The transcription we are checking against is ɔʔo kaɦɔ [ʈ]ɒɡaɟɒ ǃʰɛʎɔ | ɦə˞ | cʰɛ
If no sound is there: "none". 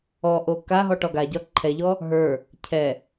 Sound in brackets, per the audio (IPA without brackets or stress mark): ʈ